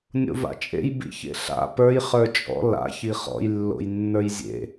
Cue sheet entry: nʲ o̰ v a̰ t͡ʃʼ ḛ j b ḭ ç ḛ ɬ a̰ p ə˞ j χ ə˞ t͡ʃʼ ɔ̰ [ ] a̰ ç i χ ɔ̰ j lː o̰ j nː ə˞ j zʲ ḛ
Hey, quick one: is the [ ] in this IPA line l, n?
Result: l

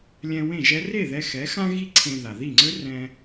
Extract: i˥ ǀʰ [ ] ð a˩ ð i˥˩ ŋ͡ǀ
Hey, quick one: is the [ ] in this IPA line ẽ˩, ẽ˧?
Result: ẽ˧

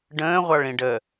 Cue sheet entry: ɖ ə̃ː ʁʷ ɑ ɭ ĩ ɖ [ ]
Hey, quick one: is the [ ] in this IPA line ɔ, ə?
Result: ə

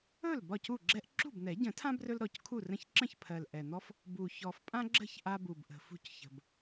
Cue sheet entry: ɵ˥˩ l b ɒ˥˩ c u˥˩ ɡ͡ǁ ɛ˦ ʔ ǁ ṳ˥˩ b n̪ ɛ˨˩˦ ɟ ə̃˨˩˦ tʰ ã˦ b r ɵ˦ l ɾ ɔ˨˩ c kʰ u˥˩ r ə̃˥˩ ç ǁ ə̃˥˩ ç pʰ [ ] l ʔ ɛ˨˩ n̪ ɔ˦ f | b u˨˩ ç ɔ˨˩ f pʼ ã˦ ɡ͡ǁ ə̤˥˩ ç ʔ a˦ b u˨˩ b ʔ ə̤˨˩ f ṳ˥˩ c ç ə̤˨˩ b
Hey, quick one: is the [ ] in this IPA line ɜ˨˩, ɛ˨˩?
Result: ɜ˨˩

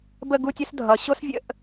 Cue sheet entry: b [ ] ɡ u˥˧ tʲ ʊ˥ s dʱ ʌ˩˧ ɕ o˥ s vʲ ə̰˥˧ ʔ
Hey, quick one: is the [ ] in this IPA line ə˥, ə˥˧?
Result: ə˥˧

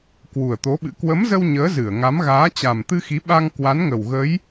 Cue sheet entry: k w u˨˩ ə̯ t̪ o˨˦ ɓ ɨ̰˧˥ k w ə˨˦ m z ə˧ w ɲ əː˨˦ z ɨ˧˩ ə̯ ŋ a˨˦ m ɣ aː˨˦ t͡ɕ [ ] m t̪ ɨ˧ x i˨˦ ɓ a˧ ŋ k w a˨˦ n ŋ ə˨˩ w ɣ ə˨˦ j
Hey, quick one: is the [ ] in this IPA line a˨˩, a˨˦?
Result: a˨˩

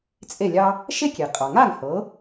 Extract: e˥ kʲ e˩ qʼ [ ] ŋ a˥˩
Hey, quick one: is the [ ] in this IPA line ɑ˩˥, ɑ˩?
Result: ɑ˩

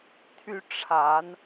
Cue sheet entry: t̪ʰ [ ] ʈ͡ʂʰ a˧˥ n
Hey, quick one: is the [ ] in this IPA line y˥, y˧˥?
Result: y˥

